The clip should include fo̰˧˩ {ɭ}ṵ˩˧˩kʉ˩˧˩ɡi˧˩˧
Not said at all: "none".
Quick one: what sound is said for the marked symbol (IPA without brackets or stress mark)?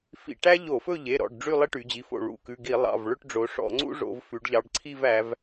ɭ